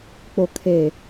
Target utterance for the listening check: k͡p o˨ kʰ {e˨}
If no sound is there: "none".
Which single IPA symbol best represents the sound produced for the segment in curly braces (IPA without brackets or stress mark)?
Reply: e˨